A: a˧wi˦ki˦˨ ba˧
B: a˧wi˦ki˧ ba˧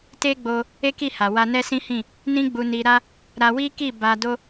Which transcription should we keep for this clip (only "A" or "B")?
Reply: A